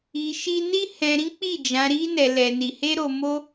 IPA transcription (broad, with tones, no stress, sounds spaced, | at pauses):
i˧ ʃ i˦ n i˦ h ɛ̃˧ ɾ ĩ˦ k͡p i˦˨ d͡ʒ ã˧ ɾ i˦ n ɛ˧ l ɛ˧ n i˧ h e˦ ɾ o˧ m o˦